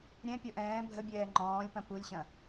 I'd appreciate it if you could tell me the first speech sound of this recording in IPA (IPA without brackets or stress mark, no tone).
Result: ɾʲ